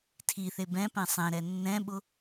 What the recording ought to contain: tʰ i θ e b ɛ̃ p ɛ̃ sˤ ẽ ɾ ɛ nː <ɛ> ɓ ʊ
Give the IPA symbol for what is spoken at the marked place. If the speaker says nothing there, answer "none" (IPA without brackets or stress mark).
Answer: ɛ̃